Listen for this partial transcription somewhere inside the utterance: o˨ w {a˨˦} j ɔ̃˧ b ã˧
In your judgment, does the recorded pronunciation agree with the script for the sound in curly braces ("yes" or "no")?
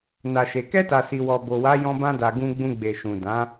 yes